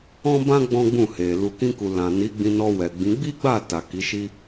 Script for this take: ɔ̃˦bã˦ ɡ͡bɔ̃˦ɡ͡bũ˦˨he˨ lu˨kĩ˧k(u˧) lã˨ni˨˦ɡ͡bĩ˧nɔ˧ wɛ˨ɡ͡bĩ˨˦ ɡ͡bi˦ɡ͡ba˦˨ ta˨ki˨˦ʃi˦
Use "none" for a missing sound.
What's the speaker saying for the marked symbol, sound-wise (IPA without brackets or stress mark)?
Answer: u˨